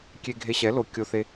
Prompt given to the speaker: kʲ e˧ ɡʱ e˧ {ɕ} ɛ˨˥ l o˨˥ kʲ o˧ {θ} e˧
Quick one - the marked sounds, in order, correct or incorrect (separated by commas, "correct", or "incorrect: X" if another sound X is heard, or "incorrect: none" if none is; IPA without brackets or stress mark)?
correct, correct